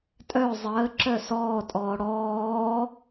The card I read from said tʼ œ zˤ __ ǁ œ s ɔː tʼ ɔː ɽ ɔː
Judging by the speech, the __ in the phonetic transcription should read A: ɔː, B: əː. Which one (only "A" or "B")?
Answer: B